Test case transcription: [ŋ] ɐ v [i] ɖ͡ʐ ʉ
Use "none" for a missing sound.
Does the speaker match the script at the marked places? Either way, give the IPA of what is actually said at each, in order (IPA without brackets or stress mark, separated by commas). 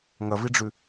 ŋ, i